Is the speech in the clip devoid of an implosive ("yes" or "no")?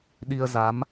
no